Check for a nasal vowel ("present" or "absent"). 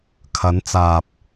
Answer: absent